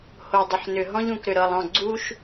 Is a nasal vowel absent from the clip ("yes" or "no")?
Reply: no